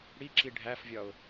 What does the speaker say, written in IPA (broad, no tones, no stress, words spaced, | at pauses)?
ɽiǁi ɖʱæfvʲɒʊ̯